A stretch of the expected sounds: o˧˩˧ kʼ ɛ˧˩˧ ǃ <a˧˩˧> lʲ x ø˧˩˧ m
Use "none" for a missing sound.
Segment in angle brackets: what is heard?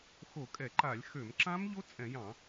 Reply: a˧˩˧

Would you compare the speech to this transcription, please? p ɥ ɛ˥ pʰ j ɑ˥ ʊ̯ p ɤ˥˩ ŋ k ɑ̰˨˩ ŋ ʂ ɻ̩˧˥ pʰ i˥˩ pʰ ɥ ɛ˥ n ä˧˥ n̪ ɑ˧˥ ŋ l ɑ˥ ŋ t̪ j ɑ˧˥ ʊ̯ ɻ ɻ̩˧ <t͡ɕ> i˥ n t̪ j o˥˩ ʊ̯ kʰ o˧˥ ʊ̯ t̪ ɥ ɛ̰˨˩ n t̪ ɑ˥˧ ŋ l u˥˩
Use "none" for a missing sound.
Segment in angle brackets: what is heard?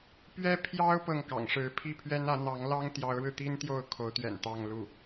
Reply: t̪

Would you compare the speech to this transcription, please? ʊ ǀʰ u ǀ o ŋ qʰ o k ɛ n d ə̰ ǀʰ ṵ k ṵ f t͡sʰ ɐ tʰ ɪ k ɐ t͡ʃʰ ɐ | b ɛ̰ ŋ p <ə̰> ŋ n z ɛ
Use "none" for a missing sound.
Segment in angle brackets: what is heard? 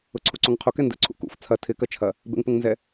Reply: ə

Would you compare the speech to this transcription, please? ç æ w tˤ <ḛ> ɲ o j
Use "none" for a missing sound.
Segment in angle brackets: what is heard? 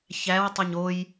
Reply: e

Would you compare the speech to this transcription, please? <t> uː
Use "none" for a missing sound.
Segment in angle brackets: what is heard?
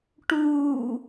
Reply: ʈ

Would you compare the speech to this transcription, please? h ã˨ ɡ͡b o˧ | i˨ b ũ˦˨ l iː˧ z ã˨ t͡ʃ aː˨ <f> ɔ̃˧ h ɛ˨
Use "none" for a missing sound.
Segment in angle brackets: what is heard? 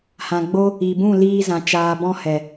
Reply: b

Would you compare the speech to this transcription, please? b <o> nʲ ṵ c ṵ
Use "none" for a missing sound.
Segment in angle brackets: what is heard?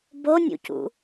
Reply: o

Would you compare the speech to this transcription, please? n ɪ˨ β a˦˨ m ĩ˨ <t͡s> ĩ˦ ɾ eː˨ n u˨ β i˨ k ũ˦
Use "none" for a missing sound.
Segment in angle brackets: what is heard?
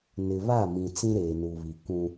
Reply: t͡s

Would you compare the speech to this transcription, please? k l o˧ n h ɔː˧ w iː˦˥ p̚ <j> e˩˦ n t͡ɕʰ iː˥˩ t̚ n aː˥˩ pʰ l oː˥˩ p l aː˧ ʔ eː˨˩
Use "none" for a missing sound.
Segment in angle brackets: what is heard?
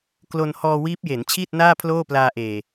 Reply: j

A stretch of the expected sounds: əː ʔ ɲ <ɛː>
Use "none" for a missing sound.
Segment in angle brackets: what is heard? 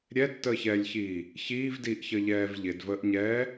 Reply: ɛː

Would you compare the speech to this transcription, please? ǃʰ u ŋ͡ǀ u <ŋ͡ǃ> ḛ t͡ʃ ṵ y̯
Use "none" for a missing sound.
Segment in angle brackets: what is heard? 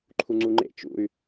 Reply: ŋ͡ǃ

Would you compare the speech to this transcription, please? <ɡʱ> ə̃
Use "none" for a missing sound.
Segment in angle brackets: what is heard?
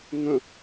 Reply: ŋ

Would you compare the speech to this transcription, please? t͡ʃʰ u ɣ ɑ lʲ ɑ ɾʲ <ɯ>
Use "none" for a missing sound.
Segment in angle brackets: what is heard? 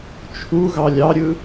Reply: ɯ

